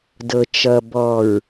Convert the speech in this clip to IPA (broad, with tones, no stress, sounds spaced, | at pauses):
d ɤ˨ t͡ʃ ʌ˨ b ɔ˨ ɹ